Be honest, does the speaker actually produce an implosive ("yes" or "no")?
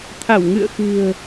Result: no